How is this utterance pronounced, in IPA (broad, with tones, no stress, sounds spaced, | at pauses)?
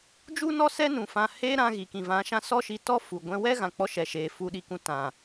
d͡ʒ u˦ n ɔ˦ s ɛ˦ n ũ˨ f ã˨ h eː˧ ɾ ã˦ ɣ i˨ k ĩ˨ v ã˨˦ ʃ ã˦ s ɔ˦ ʃ i˧ t ɔ˦ f u˨ ɡʷ ɛ̃˧ w ɛ˦ ɣ ã˨ k͡p ɔ˧ ʃ ɛ˧ ʃ eː˧ f u˧ ɗ i˧ k ũ˧ t ã˨